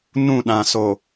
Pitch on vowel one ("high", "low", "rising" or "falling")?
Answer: falling